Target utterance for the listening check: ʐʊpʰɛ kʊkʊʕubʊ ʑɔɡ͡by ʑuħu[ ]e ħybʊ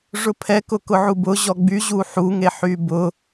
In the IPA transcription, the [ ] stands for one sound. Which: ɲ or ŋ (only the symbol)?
ŋ